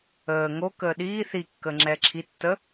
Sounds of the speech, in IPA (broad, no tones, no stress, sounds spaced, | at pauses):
əː ŋ o k əː ɗ iː θ i kː əː ŋ͡ǁ ɛː ǁʰ i tː ə